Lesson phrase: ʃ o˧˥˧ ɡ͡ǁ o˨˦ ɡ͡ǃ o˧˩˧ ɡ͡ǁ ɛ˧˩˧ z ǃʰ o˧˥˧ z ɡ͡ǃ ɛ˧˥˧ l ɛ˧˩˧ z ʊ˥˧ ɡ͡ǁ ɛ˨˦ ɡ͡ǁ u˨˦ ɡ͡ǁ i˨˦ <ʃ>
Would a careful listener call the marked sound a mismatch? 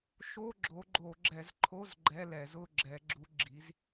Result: yes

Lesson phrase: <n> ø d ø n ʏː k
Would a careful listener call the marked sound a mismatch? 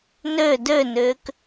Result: no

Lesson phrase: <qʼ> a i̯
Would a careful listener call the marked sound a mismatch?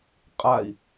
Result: no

